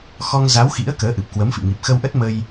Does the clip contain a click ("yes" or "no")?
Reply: no